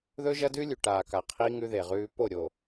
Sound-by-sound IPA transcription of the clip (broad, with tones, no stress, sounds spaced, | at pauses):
ð ɵ˦ ʒ ɐ˦ d ʉ˦ lʲ ʉ˨ ʈ aː˨ k a˨ qʰ iː˦ ŋ ʉ˦ ð e˨ ʁ ʉː˦ p o˦˨ ɾʲ o˨